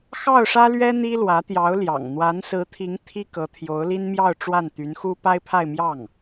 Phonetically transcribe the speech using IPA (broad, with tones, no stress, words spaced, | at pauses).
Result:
xɑ˥˩ʊ̯ʂä˥lɥɛ˥ n̪i˥lwä˧˥t̪jɑ˧˥ʊ̯ljɑ̰˨˩ŋ n̪wa˧˥nsɹ̩˧˥t̪ʰi˧˥ŋ t̪ʰi˥ kɤ˧˥t̪ʰjo˧˥ʊ̯li˥nmjɑ˥˧ʊ̯ ʈ͡ʂwa˥˩nt̪y˧˥nxu˥ pa˥ɪ̯pʰa˥˧ɪ̯mjɑ˥˩ŋ